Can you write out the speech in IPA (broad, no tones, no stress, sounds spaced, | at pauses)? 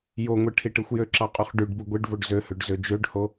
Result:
j o ŋʷ e ʈʰ i ʈ ɯ xʷ j ø ǁ ɑ qʼ y χ ɖ y ɖ b ɯ ɡʷ e ɖ v o ɖ z ø h ø ɖ z ø d͡ʒ ø ɖ h o